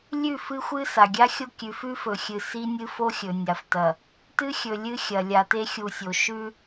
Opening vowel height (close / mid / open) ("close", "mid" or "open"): close